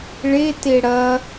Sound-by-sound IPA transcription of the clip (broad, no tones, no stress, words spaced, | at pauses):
ɭe teɽɐ